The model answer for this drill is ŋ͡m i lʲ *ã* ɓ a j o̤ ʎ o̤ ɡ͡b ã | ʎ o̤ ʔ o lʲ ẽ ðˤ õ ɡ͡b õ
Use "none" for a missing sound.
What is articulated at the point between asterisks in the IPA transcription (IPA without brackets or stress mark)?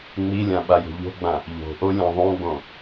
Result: ã